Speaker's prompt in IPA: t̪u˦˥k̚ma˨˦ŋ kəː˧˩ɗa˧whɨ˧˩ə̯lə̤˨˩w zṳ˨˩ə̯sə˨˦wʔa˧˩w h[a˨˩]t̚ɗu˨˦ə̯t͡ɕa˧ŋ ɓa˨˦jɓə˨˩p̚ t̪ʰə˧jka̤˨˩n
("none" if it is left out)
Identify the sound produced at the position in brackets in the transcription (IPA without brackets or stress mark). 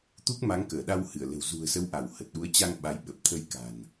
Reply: ə˨˩